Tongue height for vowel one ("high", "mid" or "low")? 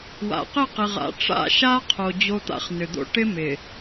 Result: low